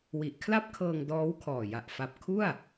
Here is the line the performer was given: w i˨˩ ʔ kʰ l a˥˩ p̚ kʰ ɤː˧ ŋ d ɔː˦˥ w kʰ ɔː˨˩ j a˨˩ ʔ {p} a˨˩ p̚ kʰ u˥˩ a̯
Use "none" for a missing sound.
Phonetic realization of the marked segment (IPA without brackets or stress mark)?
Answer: f